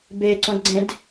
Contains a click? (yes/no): yes